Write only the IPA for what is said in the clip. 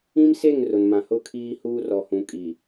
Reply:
ĩ˦mse˦˨ŋ rʊ˨nmã˨ hʊ˦˨kʰiː˦huː˦ rɔ˨hũ˨kʼi˨

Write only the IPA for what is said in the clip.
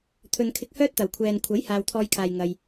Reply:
t̪ʰɵ˨nkʰɪ˧k̚hœː˥t̚t̪ɐ˨˩w kʷʰɛː˨nkʷʰɐ˨˥j haː˨wt̪ʰɔː˧jkʰaː˨j ŋɐ˧j

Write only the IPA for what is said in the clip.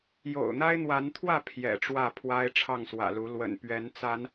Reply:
jo̰˨˩ʊ̯n̪a˦ɪ̯n̪wa˨˦nt̪ʰwä˥˨ pʰjɛ̰˨˩ ʈ͡ʂwä˥˨ pʰwa˦ɪ̯ʈ͡ʂʰɑ˥˨ŋswä̰˨˩lu˨˦ lwə̰˨˩npɥɛ˨˦nt͡sa˨˦n

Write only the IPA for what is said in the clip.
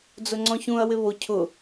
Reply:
d͡zʊŋ͡ǀɔ̃çũɐ̯wɪ βo cʰʊ

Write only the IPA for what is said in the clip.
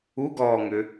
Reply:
uɡɔːŋʏ

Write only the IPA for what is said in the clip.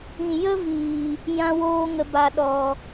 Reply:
ĩ˨jə˦viː˨ | jã˦woː˦ŋə˧ ba˧ɗɔ˨

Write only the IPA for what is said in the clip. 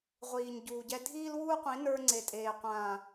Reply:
ʁʷiː˨ɲɟuː˨ɟɛ˦ dʱiː˦lwuː˦qʷĩ˨˦ nə˞˦ŋ͡ǀe˨tʼeː˨ qʷãː˨

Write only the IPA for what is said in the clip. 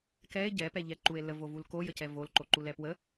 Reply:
kɛe̯ ɟɛpɛʎɛǃue̯ ləvovul kojəcɛ volǃoǃulɛ pwə

